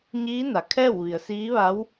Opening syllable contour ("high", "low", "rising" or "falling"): rising